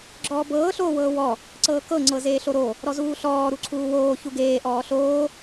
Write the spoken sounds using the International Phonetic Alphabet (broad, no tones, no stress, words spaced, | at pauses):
ɡ͡ǁɔːbɤː ɬoːwɤːwɔ | ǀɤːkɤ ŋ͡ǀɤzeːɬoɾo | ɾɔzuːɬɔː ɾuǀʰuːwoː çuɡeː ʔɔːɬoː